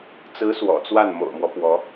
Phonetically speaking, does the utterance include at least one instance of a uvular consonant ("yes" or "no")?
no